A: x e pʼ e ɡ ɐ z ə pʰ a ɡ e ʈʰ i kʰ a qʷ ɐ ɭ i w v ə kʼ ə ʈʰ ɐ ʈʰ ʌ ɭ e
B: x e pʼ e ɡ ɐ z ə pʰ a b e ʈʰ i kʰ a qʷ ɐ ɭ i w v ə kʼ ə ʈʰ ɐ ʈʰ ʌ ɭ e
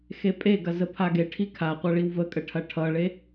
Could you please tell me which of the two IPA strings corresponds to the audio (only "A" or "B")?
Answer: A